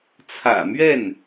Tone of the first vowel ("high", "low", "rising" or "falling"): low